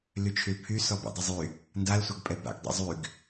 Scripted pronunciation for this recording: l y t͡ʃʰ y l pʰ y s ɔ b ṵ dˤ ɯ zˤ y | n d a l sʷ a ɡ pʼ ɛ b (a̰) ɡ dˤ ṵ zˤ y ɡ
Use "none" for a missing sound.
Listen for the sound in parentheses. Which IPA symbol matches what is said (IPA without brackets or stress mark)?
a̰